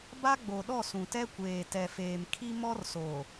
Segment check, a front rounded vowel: absent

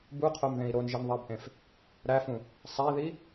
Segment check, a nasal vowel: present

